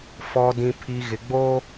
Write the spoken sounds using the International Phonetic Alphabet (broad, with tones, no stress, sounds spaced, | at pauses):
f ɔ˨ d ĩ˨ pʰ i˨ ɣ ɪ˨ ɡ͡b o˦